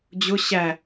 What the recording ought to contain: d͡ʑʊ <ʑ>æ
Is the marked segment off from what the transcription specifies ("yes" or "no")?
yes